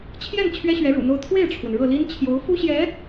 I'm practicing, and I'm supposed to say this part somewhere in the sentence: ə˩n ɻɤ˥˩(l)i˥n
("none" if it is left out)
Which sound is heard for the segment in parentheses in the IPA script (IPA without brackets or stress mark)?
l